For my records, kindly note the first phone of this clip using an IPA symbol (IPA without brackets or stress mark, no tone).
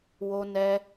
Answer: w